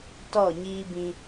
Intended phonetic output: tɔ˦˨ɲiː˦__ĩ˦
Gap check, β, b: b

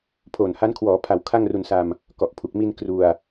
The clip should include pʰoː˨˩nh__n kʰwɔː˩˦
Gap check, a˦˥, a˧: a˦˥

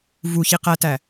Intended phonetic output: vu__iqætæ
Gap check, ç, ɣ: ç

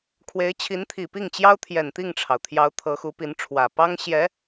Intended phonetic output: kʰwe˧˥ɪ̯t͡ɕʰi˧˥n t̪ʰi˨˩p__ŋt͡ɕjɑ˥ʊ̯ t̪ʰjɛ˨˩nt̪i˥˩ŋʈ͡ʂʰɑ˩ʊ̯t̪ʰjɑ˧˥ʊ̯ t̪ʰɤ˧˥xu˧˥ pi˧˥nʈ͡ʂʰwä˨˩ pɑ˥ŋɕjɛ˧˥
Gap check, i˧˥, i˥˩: i˥˩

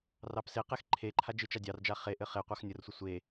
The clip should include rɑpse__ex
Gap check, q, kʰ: q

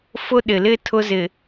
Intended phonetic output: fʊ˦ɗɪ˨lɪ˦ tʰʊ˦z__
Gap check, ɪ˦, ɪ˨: ɪ˨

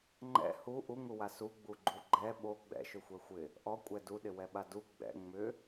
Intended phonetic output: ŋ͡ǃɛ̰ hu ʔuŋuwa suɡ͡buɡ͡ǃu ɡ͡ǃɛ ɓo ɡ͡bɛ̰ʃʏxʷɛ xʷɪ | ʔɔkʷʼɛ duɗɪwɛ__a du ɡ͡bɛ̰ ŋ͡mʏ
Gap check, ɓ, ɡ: ɓ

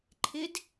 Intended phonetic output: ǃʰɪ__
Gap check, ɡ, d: d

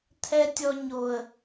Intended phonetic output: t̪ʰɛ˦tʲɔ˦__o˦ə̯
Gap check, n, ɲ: ɲ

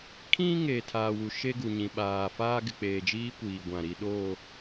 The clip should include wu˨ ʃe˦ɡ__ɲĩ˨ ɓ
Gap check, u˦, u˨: u˨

